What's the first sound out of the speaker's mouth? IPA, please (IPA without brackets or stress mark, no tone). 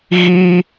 ɣ